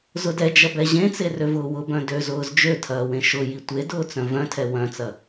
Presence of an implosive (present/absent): absent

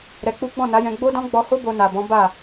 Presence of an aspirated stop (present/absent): absent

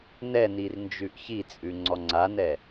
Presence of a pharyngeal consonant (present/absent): absent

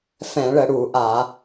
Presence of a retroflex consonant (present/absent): present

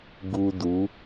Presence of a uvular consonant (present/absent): absent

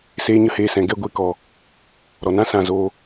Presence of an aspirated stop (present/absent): absent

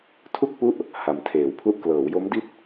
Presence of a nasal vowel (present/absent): absent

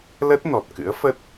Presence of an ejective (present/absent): absent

